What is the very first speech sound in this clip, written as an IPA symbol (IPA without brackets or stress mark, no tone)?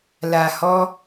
l